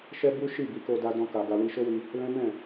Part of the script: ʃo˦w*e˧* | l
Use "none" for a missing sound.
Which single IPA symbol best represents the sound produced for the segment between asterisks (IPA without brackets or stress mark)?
i˧